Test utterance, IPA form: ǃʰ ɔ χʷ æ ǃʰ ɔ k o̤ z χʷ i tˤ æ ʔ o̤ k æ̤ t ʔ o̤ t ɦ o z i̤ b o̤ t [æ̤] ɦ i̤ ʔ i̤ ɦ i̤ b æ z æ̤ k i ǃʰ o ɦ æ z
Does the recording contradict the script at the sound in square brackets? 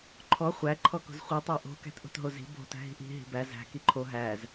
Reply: no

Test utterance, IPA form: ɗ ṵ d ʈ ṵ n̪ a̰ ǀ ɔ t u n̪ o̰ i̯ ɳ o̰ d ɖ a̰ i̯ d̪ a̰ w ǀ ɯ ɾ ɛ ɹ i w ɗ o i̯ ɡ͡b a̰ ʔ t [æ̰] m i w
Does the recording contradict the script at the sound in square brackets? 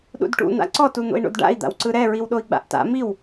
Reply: yes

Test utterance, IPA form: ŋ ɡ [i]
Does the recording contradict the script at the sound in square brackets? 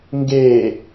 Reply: yes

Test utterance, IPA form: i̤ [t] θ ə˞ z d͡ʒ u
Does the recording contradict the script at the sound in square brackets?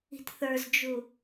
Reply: no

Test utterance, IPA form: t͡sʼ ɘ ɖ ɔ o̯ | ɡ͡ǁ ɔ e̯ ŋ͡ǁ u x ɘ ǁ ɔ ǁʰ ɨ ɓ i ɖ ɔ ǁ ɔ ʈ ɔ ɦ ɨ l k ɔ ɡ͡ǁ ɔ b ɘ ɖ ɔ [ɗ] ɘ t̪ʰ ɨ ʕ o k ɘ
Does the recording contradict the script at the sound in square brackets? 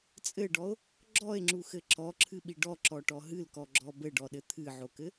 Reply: no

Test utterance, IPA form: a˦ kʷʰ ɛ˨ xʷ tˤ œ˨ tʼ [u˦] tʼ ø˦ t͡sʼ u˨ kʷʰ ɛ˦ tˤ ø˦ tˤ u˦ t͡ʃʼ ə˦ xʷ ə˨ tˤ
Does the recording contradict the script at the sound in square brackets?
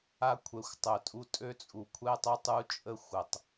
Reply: no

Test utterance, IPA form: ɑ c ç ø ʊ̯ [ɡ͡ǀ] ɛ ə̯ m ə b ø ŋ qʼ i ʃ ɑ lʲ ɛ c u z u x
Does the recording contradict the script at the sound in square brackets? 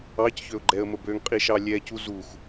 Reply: yes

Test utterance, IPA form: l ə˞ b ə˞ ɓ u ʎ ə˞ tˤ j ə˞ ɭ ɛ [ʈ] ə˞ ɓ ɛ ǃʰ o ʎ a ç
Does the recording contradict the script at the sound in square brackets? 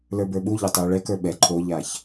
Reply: yes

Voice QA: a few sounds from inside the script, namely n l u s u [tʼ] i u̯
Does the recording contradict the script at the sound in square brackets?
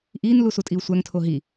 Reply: no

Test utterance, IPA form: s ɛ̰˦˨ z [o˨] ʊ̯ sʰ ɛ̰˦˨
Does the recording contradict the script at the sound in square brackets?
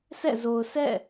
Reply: no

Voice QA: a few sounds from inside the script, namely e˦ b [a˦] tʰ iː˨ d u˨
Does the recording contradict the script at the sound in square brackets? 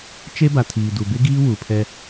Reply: yes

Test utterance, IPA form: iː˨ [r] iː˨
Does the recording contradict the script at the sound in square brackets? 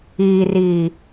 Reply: no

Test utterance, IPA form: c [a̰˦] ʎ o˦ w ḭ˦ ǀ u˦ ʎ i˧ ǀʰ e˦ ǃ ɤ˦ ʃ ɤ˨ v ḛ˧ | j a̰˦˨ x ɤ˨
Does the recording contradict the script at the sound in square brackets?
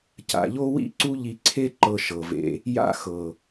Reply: yes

